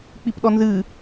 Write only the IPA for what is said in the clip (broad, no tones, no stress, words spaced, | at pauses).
k͡pipɗɔnzɨ